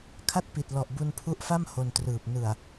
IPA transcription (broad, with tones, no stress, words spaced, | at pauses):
kʰa˥˩t̚pi˨˩t̚lɔ˨˩ʔ bu˧npʰu˦˥ʔfa˥˩m ho˧ntrɯː˨˩p̚ nɯ˨˩a̯